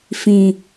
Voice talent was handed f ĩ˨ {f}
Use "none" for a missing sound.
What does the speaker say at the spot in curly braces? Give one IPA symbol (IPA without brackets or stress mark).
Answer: none